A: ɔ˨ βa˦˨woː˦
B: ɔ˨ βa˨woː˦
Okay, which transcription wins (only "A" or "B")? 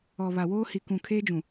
B